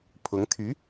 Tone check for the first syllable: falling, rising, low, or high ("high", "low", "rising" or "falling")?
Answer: rising